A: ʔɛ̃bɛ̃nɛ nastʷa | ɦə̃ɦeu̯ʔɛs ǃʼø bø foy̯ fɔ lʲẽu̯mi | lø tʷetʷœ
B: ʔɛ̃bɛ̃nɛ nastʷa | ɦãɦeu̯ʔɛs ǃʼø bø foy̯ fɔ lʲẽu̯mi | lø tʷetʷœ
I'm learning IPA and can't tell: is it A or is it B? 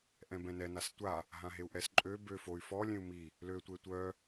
B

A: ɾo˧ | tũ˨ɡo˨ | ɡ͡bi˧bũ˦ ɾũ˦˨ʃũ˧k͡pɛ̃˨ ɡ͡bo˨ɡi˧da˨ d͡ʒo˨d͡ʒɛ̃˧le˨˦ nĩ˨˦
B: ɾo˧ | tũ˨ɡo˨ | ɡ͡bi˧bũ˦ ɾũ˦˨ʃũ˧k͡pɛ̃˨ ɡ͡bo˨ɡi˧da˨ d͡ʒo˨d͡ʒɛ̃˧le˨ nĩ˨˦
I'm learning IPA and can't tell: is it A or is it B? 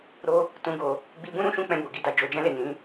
B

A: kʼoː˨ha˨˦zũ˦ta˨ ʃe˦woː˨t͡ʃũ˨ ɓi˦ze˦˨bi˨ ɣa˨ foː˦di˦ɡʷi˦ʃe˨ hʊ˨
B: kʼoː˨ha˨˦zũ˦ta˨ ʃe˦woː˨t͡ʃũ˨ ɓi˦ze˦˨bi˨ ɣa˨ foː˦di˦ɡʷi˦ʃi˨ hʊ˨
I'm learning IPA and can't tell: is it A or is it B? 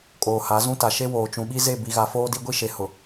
A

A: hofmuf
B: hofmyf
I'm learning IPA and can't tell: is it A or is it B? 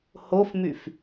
B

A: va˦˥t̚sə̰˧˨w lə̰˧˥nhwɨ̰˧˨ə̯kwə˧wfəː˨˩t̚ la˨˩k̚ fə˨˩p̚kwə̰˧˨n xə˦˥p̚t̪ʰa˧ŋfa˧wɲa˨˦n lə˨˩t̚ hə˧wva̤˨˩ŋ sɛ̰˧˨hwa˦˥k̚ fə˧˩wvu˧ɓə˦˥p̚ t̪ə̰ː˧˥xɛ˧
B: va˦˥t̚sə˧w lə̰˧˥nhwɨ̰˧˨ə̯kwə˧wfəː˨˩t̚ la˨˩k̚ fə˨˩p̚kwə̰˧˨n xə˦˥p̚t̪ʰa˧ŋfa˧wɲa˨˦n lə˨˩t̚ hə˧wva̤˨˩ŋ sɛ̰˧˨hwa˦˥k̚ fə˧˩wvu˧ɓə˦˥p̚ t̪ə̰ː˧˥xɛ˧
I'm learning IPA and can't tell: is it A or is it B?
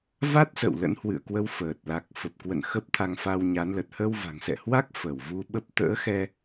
A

